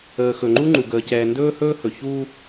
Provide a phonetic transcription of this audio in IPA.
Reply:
əː˨ x ɵ˨ ŋ͡ǃ u˦ ŋ͡ǃ u˨ ɡ əː˨ c ɛː˨ n d ɵː˦ h ɵː˦ h ɵ˨ ç uː˦

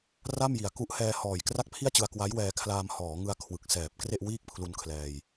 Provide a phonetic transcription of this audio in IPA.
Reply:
r a˥˩ m j i˨˩ a̯ k u˦˥ ʔ h ɛː˧ h ɔː˨˩ j k r a˥˩ k̚ pʰ i˥˩ a̯ t͡ɕ ɯ˧ a̯ k w a˦˥ j w ɛː˧ kʰ l aː˧ m h ɔː˩˦ ŋ ɯ˧ a̯ kʰ w ɯ˨˩ k̚ s ɛː˨˩ p̚ k r e˥˩ ʔ w iː˥˩ k̚ pʰ l u˧ n kʰ l ɛː˧ j

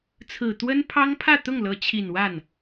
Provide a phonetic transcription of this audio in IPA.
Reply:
t͡sʰ ɹ̩˨˩ t̪ w ə˥ n pʰ ɑ˥ ŋ pʰ ä˥˧ t̪ ʊ˥˩ ŋ l ɤ˧˥ t͡ɕʰ i˨˩ n w a˥˩ n

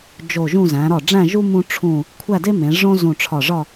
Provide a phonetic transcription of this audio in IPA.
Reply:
d͡ʒ o˧˩ ʒ ũ˥˧ z æ̃˩˧ ɾ ɒ˧˩ ɖ͡ʐ æ̃˥˧ ʒ u˥ m ũ˥ ʈ͡ʂʰ ũ˥˧ | kʷʰ æ˥˧ d e˥ m ẽ˩˧ ʐ õ˥ z ũ˧˩ ʈ͡ʂʰ ɒ˧˩ ʐ ɒ˥˧

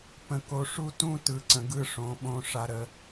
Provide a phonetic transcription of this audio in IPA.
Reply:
p ə̃˨ k o˨ ʂ u˦ t ũ˦ t ɯ˨ ǀ ə̃˨ ɡ ɯ˦˨ ʂ õ˨˦ ɓ õ˦ ʂ a˦ ɾ ə˦

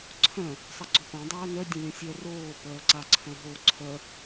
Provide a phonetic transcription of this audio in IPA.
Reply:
ǀʰ œ̃ | sˤ ʌ ɡ͡ǀ o p ã dˤ œː n œ dʲ ə̃ lʲ ə̃ sʲ œ r oː p œː ǀ a ǀʰ œ̃ ɦ o ǀʰ œ

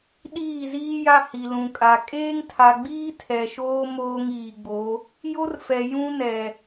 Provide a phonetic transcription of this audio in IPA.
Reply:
ɗ iː˦˨ z iː˦ j a˦ h i˨ l ũ˨ kʼ a˨ kʼ eː˦ ŋ tʰ a˨ ɡ͡b iː˦ tʰ ɛ˨ ʃ oː˦ m oː˦ ŋ iː˨ ɡ͡b o˨˦ | j o˦ r f ɛ˨ j ũ˦ n ɛ˨

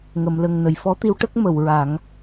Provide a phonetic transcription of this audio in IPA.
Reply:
ŋ ə˨˩˨ m l ə˨˩ ŋ n ə˨˩˨ j f ɔ˧˥ t̪ i˧˥ w ʈ ə˦˥ k̚ m ə˨˩˨ w ɹ a˨˩˦ ŋ

